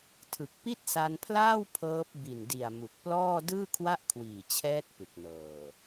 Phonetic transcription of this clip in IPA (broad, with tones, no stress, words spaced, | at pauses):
tʰɯ˨˩k̚pi˥˩t̚sa˧npʰlaː˥˩w pʰɤː˦˥p̚ bi˨˩ndi˨˩a̯ mu˨˩k̚plɔː˥˩ dɯː˥˩kʰwa˥˩ʔkʰwiː˨˩t͡ɕʰɛː˦˥t̚ pɯ˨˩k̚nɤː˨˩